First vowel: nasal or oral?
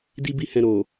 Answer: oral